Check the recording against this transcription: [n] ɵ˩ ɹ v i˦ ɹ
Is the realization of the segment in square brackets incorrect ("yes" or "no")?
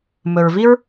yes